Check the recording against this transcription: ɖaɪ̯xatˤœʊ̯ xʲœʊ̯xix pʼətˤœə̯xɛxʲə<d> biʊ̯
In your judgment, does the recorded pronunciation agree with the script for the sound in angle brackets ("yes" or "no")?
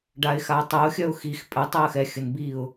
no